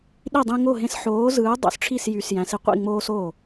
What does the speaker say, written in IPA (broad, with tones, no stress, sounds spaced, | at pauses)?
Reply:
ɗ i˥˩ dˤ ĩ˦ ŋ o˥˩ ɦ ẽ˦ s ħ oː˨˥ z ɯː˨˥ dˤ o̰˨˥ s ʈ͡ʂʰ i˥˩ s j y˨˥ s j æ̃˨˥ s i˦ qʷ ḭ˥˩ ŋ͡m oː˦ s o˥˩